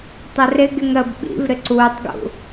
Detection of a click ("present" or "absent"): present